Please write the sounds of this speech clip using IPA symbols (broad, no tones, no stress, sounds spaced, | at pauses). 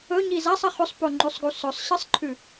ɵ ɲ i z a sˤ ɐ χ ʉ sˤ p o ŋ͡ǃ ʉ sˤ ɡ u s ɵ sˤ ɕ ɨ sˤ ǃʰ ʉ